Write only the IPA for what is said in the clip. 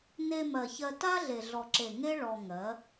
ne˧mɜ˨çɜ˧ ta˦ɮe˨ ɮɔ˨ǁe˨ ŋe˦ ɭɔ˧ŋɜ˨˦

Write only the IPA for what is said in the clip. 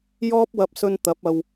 jɔː˥p̚wɐ˧p̚sɵ˧n t̪ɐ˨˥p̚ɐ˧w

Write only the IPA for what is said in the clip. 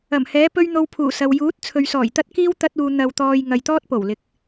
ɐ˨˩mhɛː˨˥pɵ˥ɥ n̪o˧wpʰuː˨˩ sɐ˨w juː˨˥t̚ t͡sʰɵ˨ɥsɔː˨˩jt̪ɐ˥t̚kiː˥w t̪ɐ˥t̚uː˧ n̪ɐ˧wt̪ɔː˧j ŋɐ˨jt̪ɔː˥t̚po˨˩wlɪ˨˥k̚

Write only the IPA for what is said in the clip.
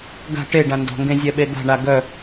ɡa̤ ʈeɖã ndɔ̤ŋɡẽzʲɛɓe d̪a̤ɳa ɡœ

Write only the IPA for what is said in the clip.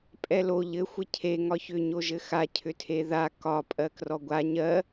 pʼɛlo ʎɘ xʷɘcʰe ŋɒçʏ ɲoʒɘxa cʰʏtʰeða kɒ pʼɜkrɔɡʷa ɲɜ

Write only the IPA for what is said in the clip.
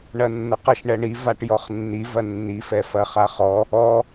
ɳɐnːəqəʃ ɳɛɳi vaʈjɔχnːi vɐnːi fɛfɐχaχɔ | ɔ

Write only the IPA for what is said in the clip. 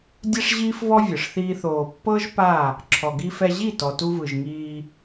dʲɛ˦ʂʑiː˦fvɔ˦ vʲɯ˨ʂθiː˦θoː˧ pːɤ˦ʒ pa˦˨ | ǁʰɔ˨ɡi˧fɛ˧ʑi˦˨ tɔ˨tu˧vɯ˨ʒŋiː˧

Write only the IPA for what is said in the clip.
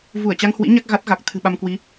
vu˧˩ə̯t͡ɕa˧ŋhwḭ˧˥ ɲa˦˥k̚ ɣa˦˥t̚ɣa˨˩k̚ t̪ʰɨ̤˨˩ ɓa˧mkwi˨˦

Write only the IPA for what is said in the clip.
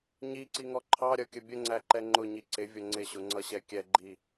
ɲiǀiŋɔ ǃʰɑɾʲʌkʲə bʲəŋ͡ǀæǃɛ ŋ͡ǃʊɲi ǀɪvʲʌ ŋ͡ǀɪɕʊŋ͡ǀʌɕɛ kʲɛɡ͡ǃi

